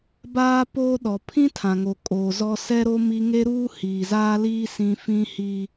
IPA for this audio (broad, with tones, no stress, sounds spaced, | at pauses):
b aː˦ p oː˦ ɗ ɔ˨ pʰ ĩ˦ tʰ ã˨ ŋ o˨ kʼ oː˨ z ɔ˦ s ɛ˦ ɾ o˦ m i˦ ŋ e˦ ɾ uː˦ h iː˨ z aː˦ l iː˦ s ĩ˦ f ĩ˦ h iː˦